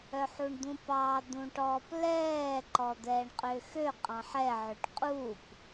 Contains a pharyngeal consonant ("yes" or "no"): yes